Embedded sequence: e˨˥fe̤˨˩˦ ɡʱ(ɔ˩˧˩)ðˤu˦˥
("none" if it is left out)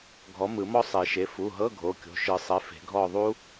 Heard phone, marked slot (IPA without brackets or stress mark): ɔ˦˨